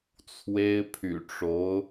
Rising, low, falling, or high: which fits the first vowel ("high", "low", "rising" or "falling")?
high